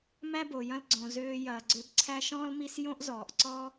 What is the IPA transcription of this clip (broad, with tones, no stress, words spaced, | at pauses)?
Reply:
mæ˥bo˩jɐ̃˦l ɡ͡ǀõ˩ zøː˨jɐː˩ɡ͡ǀø˨b ǀʰæ˦ʃɔ̃ː˥lmi˦s jõ˥ʔzɔː˩ʔǀɔ˥